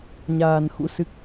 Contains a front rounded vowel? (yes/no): no